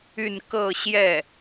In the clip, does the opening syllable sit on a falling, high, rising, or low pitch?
falling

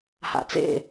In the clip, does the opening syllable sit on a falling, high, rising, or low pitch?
low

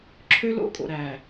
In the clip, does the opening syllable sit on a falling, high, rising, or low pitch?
high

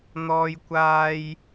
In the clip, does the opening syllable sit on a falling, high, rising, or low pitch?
high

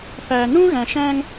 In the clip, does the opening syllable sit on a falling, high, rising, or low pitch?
low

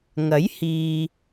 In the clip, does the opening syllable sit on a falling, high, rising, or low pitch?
rising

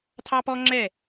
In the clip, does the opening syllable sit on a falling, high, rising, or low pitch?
high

